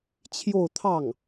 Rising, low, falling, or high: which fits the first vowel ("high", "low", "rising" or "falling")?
falling